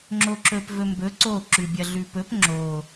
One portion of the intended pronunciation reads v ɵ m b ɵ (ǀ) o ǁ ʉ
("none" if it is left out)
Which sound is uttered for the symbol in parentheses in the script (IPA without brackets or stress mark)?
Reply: ǀ